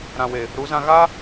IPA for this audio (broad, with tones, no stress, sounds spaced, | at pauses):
ɾ ã˨ w e˨ | ɾ u˨˦ z ã˧ ɣ a˦